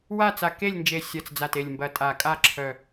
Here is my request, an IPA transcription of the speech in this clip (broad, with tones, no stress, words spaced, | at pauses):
wa˦˨t͡sa˨˩ke˦˨lʲnd͡ʒe˨˩ sʲɐ˨˩t͡sd͡za˨˩te˨˩lʲmbɐ˨˩ tʼa˨˩kʼa˦˨ ǁʰœ˨˩